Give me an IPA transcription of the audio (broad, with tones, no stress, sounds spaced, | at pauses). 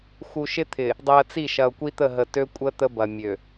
x u˨ ʃ ɪ˦ t̪ʰ ɪ˨ | dˤ i˨ ə̯ t͡s i˦˨ ʃ ɐ˨ ʊ̯ kʷ i˦ t̪ ə˦˨ ɦ ə˨ t ø˦ kʷʼ ə˦ t̪ ə˦ b ɐ˨ mʲ ø˨